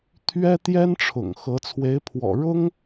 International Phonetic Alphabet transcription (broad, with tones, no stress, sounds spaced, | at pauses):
t̪ʰ ɥ ɛ˥ t̪ j ɛ˥ n ʈ͡ʂʰ ʊ̰˨˩ ŋ x ɤ˧˥ t͡sʰ w e˧˥ ɪ̯ pʰ w ɔ̰˨˩ ɻ ʊ˥ ŋ